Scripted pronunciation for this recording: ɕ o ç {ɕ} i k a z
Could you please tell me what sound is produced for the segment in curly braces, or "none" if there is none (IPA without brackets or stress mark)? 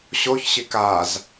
ɕ